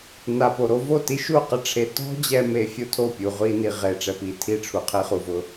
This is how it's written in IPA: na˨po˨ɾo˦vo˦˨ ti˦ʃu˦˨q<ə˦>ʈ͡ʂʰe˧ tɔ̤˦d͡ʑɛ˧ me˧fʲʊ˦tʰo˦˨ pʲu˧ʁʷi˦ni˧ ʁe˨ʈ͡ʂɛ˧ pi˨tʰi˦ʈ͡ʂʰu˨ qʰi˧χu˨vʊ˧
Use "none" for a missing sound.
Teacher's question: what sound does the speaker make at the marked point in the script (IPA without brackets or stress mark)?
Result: ɪ˦